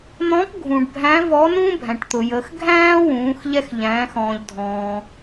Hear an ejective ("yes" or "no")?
no